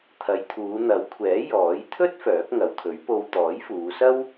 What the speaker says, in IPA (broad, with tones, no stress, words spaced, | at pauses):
t̪ʰɐ˨˧j t̪ʰuː˨˧n̪ɐ˨˥wkʷʰɛː˨˥ jɔː˨˥j t̪ʰɵ˥t̚ fœː˨˥k̚ŋɐ˨˧wt̪ʰɵ˨˥ɥ po˨w t̪ɔː˨˥jfuː˨˧ sɐ˥w